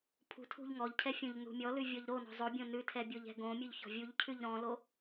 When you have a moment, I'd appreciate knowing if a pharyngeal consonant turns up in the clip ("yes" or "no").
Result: no